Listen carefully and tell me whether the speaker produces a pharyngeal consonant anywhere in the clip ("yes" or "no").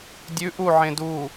yes